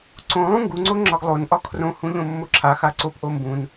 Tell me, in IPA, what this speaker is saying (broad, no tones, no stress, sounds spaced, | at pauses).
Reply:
ǀ õ lˠ ũ ŋ ɡ u ŋ͡ǀ o ŋ͡ǁ ɒ ɡ lˠ o n ʔ ɒ kʰ r õ h ũ ʎ õ mː o ǁʰ a x a ǀ o p ʔ o m b ũ n